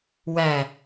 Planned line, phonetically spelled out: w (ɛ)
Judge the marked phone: incorrect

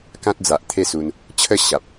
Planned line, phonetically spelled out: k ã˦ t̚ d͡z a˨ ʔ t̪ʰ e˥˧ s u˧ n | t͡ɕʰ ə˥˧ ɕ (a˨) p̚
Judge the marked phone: correct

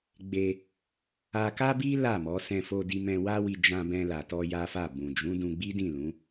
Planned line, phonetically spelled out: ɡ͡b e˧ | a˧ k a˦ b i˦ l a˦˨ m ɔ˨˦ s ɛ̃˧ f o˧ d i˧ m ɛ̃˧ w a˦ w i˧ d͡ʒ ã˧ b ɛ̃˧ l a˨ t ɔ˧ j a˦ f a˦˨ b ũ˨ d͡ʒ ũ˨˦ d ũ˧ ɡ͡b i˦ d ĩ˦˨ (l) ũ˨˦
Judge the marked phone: correct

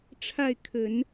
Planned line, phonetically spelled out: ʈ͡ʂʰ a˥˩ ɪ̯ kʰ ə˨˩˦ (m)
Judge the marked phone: incorrect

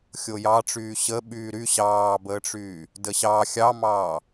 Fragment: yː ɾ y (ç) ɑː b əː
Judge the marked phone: incorrect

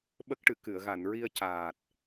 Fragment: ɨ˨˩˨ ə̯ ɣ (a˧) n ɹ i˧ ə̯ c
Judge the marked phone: incorrect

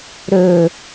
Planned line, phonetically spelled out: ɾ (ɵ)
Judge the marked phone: correct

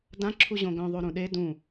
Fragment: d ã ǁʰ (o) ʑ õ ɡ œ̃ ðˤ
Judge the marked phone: incorrect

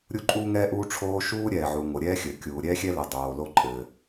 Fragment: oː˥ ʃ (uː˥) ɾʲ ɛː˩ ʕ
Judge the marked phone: correct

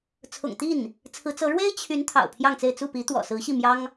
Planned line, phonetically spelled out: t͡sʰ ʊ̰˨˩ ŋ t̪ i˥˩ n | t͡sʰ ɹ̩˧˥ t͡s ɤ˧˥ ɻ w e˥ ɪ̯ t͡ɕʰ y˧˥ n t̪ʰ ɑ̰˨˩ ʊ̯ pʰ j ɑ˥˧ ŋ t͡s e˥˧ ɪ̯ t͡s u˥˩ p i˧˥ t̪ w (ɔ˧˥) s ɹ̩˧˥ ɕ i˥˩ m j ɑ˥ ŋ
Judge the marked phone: incorrect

